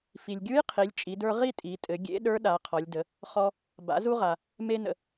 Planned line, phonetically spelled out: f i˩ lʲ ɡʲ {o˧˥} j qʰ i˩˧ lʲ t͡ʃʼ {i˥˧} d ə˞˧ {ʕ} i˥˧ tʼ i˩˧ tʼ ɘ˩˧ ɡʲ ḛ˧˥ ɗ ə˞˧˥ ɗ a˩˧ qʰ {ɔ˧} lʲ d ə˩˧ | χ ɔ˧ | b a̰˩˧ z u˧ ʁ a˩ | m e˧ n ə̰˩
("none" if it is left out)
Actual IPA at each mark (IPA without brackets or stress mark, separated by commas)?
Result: u˧˥, i˩˧, ʁ, ɔ˩˧